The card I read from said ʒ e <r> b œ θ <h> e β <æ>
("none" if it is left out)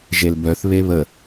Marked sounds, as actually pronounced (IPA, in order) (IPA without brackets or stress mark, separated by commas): l, β, ə